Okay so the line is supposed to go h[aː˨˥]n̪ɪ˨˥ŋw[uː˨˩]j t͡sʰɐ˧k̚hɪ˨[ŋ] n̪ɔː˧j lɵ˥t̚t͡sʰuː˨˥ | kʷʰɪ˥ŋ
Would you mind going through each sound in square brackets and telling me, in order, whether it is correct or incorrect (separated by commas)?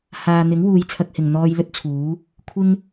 incorrect, incorrect, correct